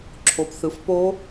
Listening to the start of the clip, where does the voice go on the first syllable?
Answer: rising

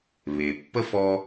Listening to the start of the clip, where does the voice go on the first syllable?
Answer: low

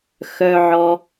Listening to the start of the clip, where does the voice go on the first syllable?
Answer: low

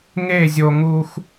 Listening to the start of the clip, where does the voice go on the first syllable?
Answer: falling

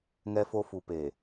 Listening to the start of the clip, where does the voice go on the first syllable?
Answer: high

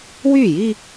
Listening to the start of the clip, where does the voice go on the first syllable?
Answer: falling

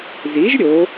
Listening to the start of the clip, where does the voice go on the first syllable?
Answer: rising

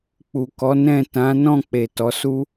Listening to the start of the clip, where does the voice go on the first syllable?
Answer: low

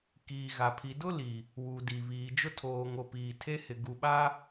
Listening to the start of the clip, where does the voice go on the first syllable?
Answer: low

